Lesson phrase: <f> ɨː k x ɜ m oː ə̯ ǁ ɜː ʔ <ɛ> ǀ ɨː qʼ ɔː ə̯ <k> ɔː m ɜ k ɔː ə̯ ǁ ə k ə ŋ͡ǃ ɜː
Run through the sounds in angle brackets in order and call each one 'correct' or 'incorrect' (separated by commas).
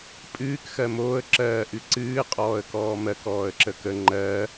incorrect, incorrect, correct